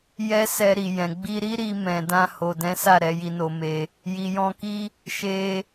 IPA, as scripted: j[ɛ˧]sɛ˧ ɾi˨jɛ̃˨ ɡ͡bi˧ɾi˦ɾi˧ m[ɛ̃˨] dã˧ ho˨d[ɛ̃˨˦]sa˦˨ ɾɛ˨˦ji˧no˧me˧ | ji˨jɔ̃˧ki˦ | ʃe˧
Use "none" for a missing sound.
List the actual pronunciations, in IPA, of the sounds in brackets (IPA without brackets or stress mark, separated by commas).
ɛ˦, ɛ̃˨, ɛ̃˨˦